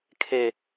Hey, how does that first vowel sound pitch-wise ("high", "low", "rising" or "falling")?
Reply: low